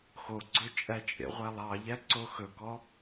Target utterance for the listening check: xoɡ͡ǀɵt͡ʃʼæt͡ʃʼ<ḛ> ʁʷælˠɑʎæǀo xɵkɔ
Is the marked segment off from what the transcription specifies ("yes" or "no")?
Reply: no